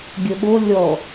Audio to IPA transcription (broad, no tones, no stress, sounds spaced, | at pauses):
ɡʲ ə ɓ o lʲ ɔ